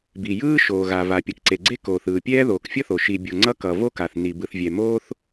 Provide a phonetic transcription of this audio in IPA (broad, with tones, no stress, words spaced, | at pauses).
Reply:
bi˩jɯː˥ʃoː˩ɣa˩ va˩ pʲʌ˩kǀe˩ɡ͡ǀe˥ koː˩θɯː˩pʲɛː˥ ðoː˩kfʲʌ˥θo˩ ʃi˩bʲo˩ ŋ͡ǀʌ˥kʌ˩ vo˥ka˩θ ni˩ bɯ˩θvʲɛ˩moː˥θ